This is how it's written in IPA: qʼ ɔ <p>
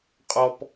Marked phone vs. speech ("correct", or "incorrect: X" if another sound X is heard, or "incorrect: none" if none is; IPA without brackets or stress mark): correct